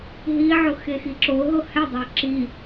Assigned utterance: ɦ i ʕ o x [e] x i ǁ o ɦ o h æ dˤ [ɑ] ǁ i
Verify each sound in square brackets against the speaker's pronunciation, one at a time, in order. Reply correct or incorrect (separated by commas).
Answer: correct, correct